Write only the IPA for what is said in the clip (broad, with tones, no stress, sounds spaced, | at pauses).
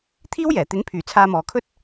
t̪ʰ iː˥ w j ɛː˨˩ t̪ ɪ˨˥ ŋ pʰ yː˨˩ t͡sʰ aː˧ m ɔː˨ kʰ ɵ˥ t̚